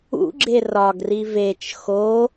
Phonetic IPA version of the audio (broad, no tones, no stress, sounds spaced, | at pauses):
ṵ ɡ͡ǁ e r ɒ ɡ r i v e t͡ʃ x o